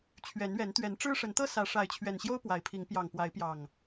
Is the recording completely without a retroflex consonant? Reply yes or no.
no